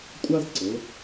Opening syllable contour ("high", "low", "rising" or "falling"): high